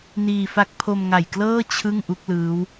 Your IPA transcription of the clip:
niː˧fa˦˥k̚ pʰo˧mŋa˨˩jklɤː˥˩ t͡ɕʰɯ˥˩ŋ ʔu˦˥k̚lɯː˦˥w

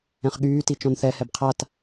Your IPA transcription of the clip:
ɛ̃χɠyːti t͡ʃɔ̃nθɛhɛb qʰat

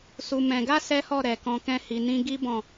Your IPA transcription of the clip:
su˧mɛ̃˧ ɡa˦ sɛ˦hɔ˦˨ ɾɛ˨kɔ̃˧kɛ̃˦ hi˧nĩ˦ ɡi˦ bɔ̃˦˨

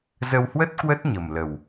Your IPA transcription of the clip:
zə˧whwə˦˥t̚ kwə˦˥t̚ɲə˨˩m lə˨˩w

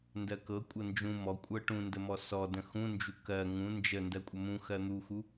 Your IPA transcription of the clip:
ndɜkɤkʷʼɤ nd͡ʒũ mɔkʷʼɤ ʈũndəmɔ sɔ də̃xũnd͡ʒu kɜ ŋũ nd͡ʒəndɜ kʷʼəmũ xɜn̪uxu

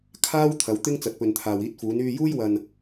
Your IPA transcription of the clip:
kʰaː˥w t̪ʰɐ˨˧wt̪ɪ˥ŋ t͡sɐ˨t̚pɵ˨nt̪ʰaː˨w iː˧t̚fuː˨˧n yː˧juː˥jwɐ˧n

